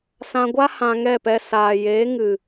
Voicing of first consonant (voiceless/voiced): voiceless